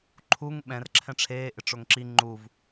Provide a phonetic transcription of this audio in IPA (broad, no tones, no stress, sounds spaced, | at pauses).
ǃʰ u ŋ ɓ ɛ̃ r ǁʰ ɛ̃ ʈ͡ʂʰ eː ʔ ɪ ʈ͡ʂ o ŋ ǁ i ŋ͡ǃ u v